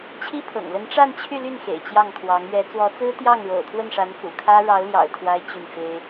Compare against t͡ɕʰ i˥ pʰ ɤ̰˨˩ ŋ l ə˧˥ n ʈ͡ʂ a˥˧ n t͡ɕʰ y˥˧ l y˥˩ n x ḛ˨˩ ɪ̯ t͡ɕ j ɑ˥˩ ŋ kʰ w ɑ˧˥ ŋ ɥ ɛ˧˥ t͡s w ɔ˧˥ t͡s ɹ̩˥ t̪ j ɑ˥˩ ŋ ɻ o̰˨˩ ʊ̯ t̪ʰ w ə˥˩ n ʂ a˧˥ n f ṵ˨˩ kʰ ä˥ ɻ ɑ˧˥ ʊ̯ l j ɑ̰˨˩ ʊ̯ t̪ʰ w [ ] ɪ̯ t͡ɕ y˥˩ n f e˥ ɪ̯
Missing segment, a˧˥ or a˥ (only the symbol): a˥